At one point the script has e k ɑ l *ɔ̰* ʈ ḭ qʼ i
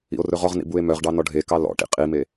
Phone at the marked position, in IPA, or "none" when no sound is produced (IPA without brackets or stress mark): ɔ̰